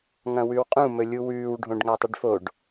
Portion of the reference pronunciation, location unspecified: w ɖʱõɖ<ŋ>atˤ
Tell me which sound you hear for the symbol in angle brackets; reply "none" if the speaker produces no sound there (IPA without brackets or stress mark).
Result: ŋ